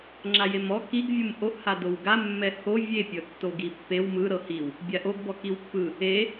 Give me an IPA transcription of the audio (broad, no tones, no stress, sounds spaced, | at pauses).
ŋ͡ǁ a j e m ɔ k i ɡ vʲ u m ʔ o ʔ h a d o w ɡ a mː ɛ h o vʲ e pʲ ɤ tː o ɡ i pː e w m ɯ ɾ ɤ h i w | bʲ a ʔ o ɡ b ɔ k i w pː ɯ | e